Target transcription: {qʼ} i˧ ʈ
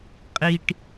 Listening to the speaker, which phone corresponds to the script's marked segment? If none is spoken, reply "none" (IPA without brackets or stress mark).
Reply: qʼ